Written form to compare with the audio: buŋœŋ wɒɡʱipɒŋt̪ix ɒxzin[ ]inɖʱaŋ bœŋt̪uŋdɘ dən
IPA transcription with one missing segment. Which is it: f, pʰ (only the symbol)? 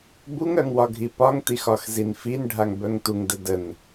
f